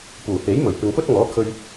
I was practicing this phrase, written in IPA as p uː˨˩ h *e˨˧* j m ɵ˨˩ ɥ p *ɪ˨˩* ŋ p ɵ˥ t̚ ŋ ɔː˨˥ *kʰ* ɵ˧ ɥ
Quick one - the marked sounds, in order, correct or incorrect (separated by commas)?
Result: incorrect, incorrect, correct